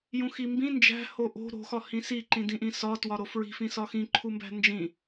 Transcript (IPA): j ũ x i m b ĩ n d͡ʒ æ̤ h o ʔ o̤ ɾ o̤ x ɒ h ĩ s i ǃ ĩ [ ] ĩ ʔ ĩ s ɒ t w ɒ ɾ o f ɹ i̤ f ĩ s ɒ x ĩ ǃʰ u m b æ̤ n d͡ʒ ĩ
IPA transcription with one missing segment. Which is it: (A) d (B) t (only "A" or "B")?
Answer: A